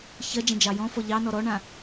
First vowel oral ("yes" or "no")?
yes